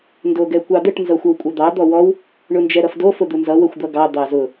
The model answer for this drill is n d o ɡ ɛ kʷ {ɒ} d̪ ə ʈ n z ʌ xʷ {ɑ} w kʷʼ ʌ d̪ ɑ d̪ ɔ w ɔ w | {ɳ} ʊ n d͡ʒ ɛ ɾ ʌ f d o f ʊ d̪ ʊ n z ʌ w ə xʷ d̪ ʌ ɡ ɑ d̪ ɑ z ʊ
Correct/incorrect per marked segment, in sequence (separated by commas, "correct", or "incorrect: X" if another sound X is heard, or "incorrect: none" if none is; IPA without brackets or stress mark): incorrect: ɑ, incorrect: ə, correct